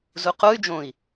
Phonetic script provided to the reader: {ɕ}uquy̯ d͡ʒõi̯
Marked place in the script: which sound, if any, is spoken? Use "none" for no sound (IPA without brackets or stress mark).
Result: z